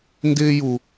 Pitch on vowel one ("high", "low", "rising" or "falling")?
high